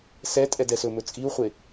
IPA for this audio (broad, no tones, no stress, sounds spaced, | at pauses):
s ɛ tʼ ɛ d ɛ s ɵ m ɵ t͡sʼ i u̯ χʷ e